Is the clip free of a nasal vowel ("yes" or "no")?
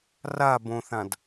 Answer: no